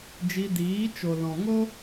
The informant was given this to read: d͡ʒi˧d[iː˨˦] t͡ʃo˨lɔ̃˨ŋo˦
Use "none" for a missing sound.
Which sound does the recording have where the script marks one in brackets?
iː˨˦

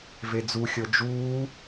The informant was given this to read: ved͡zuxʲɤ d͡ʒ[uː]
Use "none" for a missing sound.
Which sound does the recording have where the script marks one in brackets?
uː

